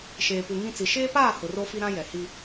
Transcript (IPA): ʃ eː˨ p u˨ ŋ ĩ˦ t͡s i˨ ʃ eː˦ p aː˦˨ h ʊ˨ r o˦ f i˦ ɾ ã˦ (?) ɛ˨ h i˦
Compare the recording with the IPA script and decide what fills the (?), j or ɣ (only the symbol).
j